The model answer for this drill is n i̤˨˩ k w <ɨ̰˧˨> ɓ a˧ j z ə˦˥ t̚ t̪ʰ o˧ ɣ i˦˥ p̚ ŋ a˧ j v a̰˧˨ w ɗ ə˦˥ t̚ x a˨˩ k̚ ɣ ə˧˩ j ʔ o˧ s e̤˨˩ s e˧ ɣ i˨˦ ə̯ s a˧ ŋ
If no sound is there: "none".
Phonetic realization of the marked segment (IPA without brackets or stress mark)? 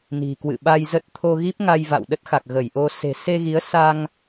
ɨ̰˧˨